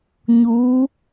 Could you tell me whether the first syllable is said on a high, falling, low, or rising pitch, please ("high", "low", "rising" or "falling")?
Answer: rising